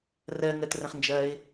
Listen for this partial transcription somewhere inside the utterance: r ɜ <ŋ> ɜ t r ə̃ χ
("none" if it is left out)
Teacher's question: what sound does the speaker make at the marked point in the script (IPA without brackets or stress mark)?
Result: ŋ